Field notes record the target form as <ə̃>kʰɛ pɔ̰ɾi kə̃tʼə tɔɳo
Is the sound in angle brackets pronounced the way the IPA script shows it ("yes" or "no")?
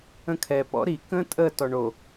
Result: yes